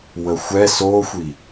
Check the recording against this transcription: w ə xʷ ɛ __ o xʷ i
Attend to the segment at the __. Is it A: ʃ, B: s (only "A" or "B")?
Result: B